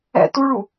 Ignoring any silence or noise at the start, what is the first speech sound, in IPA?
ɛ̰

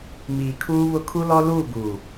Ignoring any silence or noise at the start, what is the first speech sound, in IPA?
m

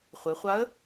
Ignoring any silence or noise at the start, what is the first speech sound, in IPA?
χʷ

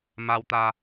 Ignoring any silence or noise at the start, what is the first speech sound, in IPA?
m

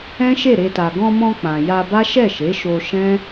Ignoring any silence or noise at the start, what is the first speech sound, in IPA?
ɛ̃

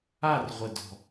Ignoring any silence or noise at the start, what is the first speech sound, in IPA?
a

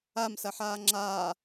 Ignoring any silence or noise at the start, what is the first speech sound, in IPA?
a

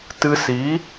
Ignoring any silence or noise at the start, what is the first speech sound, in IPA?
t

